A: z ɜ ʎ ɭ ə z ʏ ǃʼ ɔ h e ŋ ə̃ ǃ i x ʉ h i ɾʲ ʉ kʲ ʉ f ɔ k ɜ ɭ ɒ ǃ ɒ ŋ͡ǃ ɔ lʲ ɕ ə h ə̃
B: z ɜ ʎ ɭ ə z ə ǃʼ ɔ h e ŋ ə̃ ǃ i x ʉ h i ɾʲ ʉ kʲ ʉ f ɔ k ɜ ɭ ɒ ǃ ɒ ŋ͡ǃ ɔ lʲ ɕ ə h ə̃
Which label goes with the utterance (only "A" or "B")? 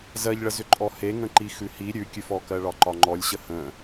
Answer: A